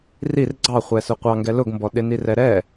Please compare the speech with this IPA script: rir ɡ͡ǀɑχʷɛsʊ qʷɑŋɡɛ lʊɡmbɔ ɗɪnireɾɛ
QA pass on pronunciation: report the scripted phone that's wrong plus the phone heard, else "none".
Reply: e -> ɛ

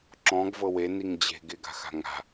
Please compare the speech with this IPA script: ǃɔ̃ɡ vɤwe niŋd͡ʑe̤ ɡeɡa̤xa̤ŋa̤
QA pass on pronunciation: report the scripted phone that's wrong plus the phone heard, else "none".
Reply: ǃ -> ǁ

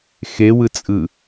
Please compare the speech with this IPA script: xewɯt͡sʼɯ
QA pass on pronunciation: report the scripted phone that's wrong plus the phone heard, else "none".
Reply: none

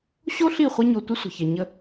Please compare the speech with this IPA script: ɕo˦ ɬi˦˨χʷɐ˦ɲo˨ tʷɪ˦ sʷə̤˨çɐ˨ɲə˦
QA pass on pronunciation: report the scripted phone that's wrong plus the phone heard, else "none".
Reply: none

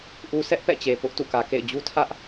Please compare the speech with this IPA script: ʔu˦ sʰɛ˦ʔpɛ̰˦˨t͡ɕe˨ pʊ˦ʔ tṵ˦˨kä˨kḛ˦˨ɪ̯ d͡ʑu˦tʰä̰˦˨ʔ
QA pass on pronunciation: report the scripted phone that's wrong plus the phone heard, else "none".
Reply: ä̰˦˨ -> ä˦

